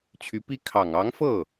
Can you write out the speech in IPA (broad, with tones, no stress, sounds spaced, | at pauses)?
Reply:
t͡ɕʰ y˧˥ p i˥ kʰ ɑ˨˩ ŋ ɑ˧˥ ŋ f ɤ˥˩